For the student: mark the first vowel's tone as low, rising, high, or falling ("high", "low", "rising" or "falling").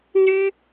high